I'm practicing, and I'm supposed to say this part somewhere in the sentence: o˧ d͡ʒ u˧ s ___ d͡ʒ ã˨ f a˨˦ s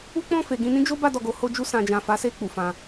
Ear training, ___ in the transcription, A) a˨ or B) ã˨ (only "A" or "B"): B